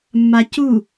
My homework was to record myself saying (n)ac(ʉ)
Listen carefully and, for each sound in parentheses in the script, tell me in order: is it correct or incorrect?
incorrect: mː, incorrect: u

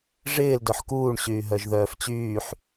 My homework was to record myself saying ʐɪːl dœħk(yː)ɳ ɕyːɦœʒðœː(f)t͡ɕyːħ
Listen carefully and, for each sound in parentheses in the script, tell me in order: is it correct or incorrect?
incorrect: uː, correct

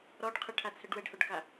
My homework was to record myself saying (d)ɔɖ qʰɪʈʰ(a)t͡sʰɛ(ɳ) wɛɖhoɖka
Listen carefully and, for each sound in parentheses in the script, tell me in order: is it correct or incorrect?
incorrect: ɾ, correct, incorrect: ɖ

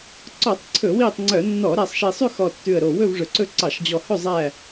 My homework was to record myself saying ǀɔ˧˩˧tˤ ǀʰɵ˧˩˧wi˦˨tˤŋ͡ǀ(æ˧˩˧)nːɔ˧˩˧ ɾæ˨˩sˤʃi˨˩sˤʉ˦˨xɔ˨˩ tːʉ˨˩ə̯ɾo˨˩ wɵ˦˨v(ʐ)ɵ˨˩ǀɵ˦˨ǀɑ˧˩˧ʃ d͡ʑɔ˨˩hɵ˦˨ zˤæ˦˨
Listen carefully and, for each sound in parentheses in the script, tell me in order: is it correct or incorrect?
incorrect: œ˧˩˧, correct

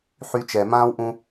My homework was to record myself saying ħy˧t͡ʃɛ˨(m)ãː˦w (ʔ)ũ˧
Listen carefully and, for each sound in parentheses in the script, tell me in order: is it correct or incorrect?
correct, correct

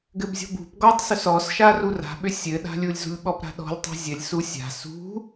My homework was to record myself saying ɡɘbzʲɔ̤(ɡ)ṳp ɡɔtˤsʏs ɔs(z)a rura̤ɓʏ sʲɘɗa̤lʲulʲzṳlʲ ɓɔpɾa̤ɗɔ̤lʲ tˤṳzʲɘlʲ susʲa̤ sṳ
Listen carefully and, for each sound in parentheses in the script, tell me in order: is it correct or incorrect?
incorrect: b, incorrect: ʃ

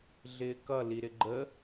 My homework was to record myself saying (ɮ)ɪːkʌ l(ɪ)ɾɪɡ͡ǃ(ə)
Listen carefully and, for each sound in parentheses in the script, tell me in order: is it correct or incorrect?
correct, incorrect: i, correct

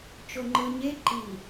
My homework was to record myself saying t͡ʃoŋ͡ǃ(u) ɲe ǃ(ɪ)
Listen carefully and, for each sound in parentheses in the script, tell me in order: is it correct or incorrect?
incorrect: ɯ, incorrect: i

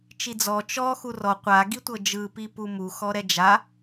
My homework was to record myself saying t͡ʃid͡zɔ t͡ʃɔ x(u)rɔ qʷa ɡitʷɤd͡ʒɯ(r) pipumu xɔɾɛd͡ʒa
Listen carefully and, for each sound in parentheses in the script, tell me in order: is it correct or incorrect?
correct, incorrect: none

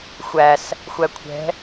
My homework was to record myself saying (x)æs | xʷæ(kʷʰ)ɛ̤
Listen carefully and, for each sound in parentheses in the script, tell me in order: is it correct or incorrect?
incorrect: xʷ, correct

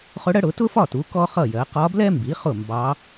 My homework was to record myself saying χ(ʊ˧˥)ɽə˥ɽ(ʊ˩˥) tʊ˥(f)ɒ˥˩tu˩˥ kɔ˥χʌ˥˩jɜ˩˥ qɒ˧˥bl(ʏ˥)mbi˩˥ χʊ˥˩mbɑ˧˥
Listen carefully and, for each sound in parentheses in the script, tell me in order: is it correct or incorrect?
correct, correct, correct, incorrect: ɛ˥

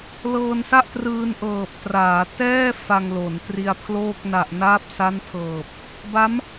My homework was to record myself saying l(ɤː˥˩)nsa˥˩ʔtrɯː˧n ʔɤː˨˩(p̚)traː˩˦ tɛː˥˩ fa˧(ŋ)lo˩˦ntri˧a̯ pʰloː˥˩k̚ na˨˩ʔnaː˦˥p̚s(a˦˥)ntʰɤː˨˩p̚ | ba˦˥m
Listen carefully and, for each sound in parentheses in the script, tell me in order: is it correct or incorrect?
incorrect: ɤː˧, correct, correct, correct

